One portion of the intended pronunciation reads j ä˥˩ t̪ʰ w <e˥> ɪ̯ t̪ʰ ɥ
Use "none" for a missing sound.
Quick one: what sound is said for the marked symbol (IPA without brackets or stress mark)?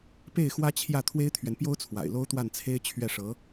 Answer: e˥